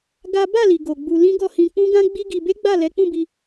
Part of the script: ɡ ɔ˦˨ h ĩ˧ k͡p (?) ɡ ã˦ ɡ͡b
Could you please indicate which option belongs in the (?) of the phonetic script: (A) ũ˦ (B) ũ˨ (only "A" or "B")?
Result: A